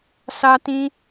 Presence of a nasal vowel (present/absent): present